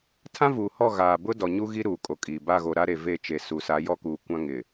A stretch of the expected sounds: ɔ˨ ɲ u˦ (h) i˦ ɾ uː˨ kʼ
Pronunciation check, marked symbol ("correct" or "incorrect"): incorrect